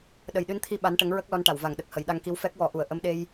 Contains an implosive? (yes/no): yes